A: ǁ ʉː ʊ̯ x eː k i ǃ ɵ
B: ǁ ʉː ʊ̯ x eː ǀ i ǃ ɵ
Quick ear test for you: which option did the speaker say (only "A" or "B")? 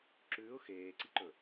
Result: B